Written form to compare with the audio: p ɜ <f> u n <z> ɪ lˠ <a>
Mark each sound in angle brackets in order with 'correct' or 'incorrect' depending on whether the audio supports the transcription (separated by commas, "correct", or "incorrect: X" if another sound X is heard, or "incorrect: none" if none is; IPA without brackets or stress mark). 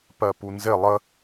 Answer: incorrect: p, correct, incorrect: ə